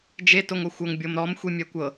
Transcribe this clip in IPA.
d͡ʒe toŋoxʷɤŋ bʲɤmɾɔm xʷimʲɛkʷɤ

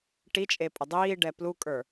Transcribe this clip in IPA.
ʈit͡ʃʼe pʼədˤiːɖɛ plukʼə˞

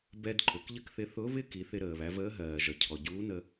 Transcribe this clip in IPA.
bɛ˧d ǃʊ˩˧kʎə˥kθɪ˧˥ θʊ˧˥ βɪ˥ ki˩˧θɪ˧ɾəː˩βæ˩˧ vəː˧˥ɦɜː˩ʒʌ˩ cʰɔ˩ɟuː˧˥nə˧

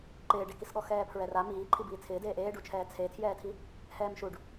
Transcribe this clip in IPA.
ǃɪːɖekisɠɔ xɛːpʰɹɛra miːǃʰi biːt͡sʰɪː deːʔeːɖut͡ʃʰɛː t͡sʰetʰjɛːtʰi | hɛːmʃuɖ

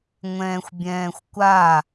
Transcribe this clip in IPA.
ŋʷɛ̃ːxʷbʲɛ̃ːxʷkʷa

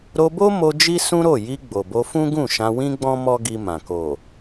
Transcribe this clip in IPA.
ɾo˧bo˦mo˧ d͡ʒi˦sũ˦ɾo˦˨ ji˧ ɡ͡bo˨bo˧fũ˦ ɡũ˦˨ʃã˧wĩ˦ɡ͡bɔ̃˦ mɔ˦ɡi˧mã˨ ko˨

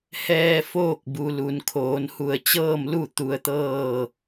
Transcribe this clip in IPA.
hɛː˧ foː˥˨k̚bu˩lu˩n kʰoː˩˧nhu˧˩ə̯t͡ɕɤː˥˨mlu˥˨ t̪u˧ə̯t̪ɤː˥˨

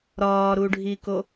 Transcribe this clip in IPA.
ɾɒːɾuɖʱiko

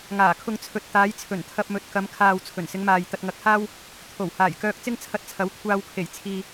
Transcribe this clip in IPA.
ŋaː˨˩kʰʊ˧ŋ t͡sʰɵ˧t̚ t̪aː˨˧jt͡sʰɵ˨˩n t̪ʰɐ˧p̚mɵ˨˥t̚kɐ˨˧m kʰaː˨w t͡sʰɵ˨˩nsɪ˨˧ŋmaː˨j t̪ɐ˧t̚ŋɐ˧k̚haː˥w | t̪ʰo˨˩w haː˨˩jkœː˧k̚ t͡sɪ˥ŋt͡sʰɐ˧t̚t͡sʰɐ˨˥w kʷʰaː˧wkʰe˨˩jt͡sʰiː˨

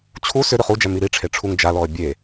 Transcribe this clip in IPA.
t͡ɕʰu sʏ ɾʏχud͡ʒæ miɾiʈ͡ʂʰe ʈ͡ʂʰuŋd͡ʒalɔə̯ bʲe

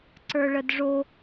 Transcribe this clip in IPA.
ǀə˞ɭədʐo

